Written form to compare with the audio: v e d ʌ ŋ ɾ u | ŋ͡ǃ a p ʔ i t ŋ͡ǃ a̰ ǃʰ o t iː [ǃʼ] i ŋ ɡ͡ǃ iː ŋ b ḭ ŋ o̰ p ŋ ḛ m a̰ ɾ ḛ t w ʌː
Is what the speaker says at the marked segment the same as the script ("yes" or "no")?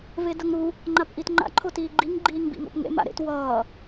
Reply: no